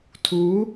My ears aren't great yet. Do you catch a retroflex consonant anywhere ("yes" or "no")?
no